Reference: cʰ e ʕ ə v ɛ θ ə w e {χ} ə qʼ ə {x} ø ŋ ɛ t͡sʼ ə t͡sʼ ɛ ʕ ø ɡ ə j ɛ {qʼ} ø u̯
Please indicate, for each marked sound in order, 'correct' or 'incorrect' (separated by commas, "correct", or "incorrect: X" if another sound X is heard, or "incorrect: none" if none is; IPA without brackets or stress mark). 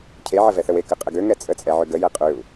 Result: incorrect: k, incorrect: ɡ, correct